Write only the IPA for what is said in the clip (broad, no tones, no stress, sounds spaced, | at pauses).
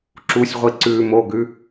ǁ u sʲ ʁʷ i ǀ ʉ m o ɡ ʉ